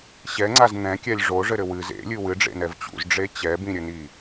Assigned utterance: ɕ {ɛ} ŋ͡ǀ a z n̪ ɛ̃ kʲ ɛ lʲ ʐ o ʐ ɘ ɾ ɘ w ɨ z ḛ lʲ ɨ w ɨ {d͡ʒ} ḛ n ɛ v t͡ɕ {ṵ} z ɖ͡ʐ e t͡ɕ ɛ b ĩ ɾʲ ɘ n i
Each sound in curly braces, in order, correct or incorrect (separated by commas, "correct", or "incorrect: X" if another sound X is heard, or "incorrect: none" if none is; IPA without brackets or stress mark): correct, incorrect: ɖ͡ʐ, correct